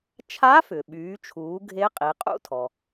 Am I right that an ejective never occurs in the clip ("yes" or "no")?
no